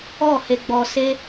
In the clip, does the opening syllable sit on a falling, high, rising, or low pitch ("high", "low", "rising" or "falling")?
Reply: falling